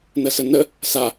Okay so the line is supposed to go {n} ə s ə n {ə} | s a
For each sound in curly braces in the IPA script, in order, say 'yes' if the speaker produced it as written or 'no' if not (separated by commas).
yes, yes